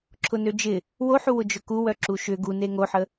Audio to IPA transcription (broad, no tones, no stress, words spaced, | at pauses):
ǁʰʊnød͡ʒɪ | woħuwʊ d͡ʒʊkuwœ ǁuʃʏ ɡune ŋoħə